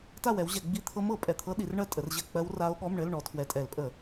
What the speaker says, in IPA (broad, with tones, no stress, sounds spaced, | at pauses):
t a˥˨ w ɛ˨˦ w ʑ ɛ˧˩˧ ɡ͡b i˧˥˧ t̪ʰ ɤ˦˥ m ɤ˧˩˧ pʼ ɛ˨˩ t̪ʰ ɤ˦˥ ɗ i˨˦ r ɳ ɜ˥˨ tʼ ə˨˦ r ʑ ɘ˥˨ k͡p ɜ˦˥ w r a˦˥ o̯ ɠ ɔ˧˥˧ m ɳ ɘ˧˥˧ l ɳ ɔ˨˦ tʰ w ɛ˨˩ tʼ ɛ˧˩˧ l pʼ ə˧˩˧